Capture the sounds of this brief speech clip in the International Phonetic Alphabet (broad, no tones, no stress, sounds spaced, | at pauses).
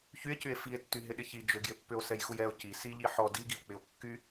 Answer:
ç y e̯ c y e̯ f i e̯ tː y ɦ ɪ ɗ ɪ ç i d͡ʒ ʏ ɡ j ɪ pː ʏ o̯ s ɛ j x u j ɛ o̯ c i s i ʎ i ħ ɔ d i ɡ i o̯ k͡p ɪ o̯ kː y